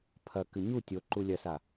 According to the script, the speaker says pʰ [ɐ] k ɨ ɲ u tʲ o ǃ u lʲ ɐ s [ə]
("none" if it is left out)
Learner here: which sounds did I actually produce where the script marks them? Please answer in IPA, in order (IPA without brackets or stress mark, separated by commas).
ɐ, a